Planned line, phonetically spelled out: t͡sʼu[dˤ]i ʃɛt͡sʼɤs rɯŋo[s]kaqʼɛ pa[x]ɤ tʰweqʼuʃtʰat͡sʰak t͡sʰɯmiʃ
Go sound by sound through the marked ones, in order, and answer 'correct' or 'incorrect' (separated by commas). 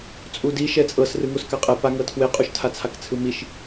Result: incorrect, correct, incorrect